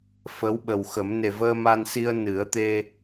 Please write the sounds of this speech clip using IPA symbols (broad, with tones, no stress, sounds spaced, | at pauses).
f ə˧˥ w ɓ ə˨˩ w x ə˨˩˦ m n e˨˩ v əː˧ m a˧ n s i˧ ə̯ n ɨ˨˩˦ ə̯ t̪ e˧